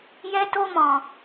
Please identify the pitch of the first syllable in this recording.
high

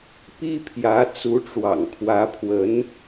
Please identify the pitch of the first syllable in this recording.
high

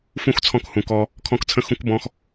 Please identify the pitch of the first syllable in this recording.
falling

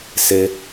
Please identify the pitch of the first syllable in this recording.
high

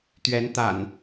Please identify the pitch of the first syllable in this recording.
rising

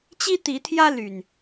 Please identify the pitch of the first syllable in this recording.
high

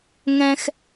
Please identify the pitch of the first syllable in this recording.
low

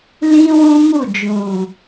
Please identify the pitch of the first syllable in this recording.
high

